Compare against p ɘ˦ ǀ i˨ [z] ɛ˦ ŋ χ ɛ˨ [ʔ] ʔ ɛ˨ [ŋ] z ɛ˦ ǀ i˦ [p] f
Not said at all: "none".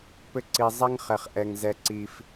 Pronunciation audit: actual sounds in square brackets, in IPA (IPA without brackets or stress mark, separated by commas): zˤ, χ, ŋ, none